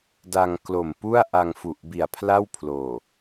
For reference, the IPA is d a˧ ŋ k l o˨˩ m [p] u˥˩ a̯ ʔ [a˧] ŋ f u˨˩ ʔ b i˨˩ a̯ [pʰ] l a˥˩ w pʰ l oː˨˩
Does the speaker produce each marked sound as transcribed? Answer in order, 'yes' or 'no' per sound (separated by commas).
yes, yes, yes